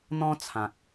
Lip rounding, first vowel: rounded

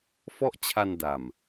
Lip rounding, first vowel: rounded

